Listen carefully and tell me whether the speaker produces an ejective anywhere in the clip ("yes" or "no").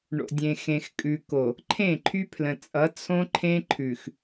yes